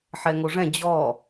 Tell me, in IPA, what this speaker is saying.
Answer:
ħ ɛ ŋ o ʐ ɛ̃ d͡ʑ ɔ

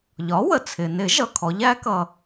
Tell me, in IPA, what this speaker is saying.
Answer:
ʎ ɒ˩˥ w ə˩ t͡sʰ ɪ˩ n ɪ˨˩˦ ʒ ʌ˩ kʰ ɔ˩˥ ʎ æ˩˥ k ʌ˩

